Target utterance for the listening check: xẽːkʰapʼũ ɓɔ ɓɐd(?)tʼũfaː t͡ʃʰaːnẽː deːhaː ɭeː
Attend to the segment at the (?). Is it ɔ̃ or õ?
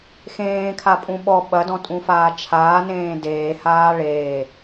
ɔ̃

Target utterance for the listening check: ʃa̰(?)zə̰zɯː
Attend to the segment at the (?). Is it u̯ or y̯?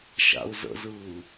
u̯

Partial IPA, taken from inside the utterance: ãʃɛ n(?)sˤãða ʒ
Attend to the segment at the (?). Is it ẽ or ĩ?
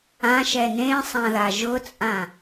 ẽ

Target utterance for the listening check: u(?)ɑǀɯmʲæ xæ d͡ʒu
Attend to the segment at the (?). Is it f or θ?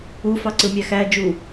f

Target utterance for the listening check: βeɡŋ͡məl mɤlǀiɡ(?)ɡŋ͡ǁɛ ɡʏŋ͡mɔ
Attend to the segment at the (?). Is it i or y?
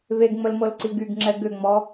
y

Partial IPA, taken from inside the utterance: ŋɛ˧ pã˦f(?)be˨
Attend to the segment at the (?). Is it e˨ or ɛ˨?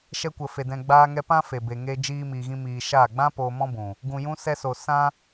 e˨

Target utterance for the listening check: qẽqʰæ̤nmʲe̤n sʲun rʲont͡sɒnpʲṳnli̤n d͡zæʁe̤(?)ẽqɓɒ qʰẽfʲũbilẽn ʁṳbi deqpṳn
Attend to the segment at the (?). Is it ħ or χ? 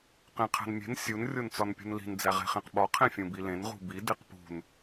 χ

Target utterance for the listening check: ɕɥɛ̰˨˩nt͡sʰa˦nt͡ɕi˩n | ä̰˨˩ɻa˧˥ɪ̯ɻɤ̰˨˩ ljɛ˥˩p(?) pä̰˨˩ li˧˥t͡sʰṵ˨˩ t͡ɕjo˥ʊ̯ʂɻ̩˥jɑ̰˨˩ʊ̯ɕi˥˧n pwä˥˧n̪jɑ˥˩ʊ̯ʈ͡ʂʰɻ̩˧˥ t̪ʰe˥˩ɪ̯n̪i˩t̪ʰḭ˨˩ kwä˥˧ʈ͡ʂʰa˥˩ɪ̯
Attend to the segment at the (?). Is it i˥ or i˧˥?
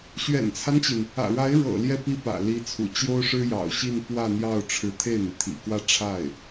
i˥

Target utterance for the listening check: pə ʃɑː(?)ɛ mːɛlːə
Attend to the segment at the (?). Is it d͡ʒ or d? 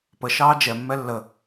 d͡ʒ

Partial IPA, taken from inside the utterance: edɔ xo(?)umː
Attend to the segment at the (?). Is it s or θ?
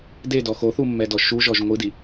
θ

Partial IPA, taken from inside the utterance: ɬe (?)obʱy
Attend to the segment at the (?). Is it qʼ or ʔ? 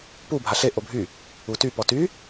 ʔ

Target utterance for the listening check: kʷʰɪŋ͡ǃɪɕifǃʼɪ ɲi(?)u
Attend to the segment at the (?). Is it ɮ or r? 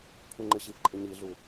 ɮ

